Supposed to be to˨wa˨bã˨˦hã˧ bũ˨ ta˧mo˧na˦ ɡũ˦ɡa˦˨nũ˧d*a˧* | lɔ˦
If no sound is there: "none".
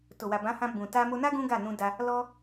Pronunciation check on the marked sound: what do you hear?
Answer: a˧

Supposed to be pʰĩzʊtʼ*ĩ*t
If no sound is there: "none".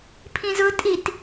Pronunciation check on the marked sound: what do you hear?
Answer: i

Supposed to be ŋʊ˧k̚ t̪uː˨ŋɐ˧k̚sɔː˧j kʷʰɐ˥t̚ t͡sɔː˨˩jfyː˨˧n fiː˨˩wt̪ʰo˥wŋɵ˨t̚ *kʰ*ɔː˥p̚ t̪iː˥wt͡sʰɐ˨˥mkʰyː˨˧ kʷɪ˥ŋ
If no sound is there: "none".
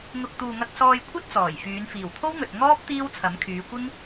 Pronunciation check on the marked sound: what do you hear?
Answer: ŋ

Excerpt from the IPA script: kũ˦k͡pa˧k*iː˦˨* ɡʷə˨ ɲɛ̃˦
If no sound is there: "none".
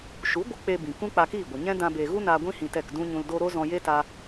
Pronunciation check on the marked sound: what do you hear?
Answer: iː˦˨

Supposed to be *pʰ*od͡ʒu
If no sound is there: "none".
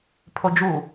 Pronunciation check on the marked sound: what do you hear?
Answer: pʰ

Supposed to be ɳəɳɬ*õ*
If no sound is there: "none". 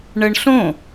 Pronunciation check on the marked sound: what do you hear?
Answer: õ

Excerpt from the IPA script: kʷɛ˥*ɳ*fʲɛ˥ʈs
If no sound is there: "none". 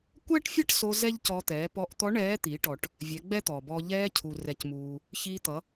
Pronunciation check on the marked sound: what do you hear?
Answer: ʈ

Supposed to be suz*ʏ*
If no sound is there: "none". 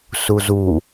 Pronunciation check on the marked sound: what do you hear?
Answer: u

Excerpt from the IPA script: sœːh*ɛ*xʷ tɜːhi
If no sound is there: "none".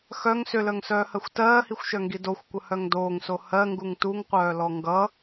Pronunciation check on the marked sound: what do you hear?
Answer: ɜ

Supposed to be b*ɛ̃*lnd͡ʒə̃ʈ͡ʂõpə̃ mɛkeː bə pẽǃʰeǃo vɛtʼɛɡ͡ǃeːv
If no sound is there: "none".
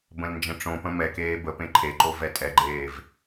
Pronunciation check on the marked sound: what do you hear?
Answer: ə̃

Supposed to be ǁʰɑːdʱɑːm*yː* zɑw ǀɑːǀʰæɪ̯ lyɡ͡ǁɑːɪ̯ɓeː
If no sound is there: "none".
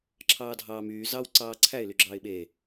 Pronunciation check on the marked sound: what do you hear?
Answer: yː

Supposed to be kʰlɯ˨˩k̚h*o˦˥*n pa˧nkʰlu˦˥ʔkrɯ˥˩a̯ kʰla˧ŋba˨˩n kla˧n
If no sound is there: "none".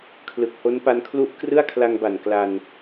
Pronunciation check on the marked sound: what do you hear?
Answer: o˦˥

